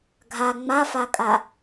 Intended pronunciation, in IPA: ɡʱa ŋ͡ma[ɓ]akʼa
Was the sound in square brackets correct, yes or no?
no